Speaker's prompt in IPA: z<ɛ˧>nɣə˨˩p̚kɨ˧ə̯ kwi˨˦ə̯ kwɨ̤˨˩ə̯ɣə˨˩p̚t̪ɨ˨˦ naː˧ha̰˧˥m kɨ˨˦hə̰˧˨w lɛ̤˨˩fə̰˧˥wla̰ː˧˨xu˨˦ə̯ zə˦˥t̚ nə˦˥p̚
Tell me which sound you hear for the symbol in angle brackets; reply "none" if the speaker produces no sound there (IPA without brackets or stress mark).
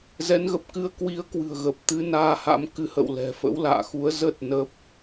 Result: ɛ˨˦